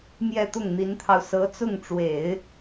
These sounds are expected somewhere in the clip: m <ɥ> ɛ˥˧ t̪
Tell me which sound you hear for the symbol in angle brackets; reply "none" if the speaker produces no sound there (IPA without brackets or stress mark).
j